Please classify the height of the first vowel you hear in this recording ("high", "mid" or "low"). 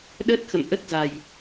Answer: mid